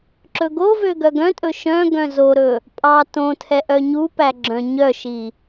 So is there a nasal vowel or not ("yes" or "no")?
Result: yes